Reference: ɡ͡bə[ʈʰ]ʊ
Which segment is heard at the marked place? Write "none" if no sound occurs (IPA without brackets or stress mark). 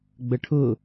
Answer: ʈʰ